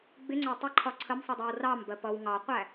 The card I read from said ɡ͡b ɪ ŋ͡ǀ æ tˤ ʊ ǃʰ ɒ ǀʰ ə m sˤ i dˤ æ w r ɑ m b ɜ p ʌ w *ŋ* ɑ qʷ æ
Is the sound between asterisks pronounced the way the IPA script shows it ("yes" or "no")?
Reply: yes